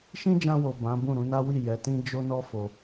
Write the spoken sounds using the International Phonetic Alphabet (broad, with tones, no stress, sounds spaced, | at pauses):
ʃ ĩ˦ d͡ʒ ã˧ w o˨ b ã˨˦ b ũ˦˨ ɾ ũ˧ n a˦ w i˦˨ j ɛ˨˦ t ĩ˦ d͡ʒ o˦ n ɔ˦ f o˧